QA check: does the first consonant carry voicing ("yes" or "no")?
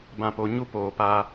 yes